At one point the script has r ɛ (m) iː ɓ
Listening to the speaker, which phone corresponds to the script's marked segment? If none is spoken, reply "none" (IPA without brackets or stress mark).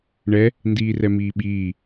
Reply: m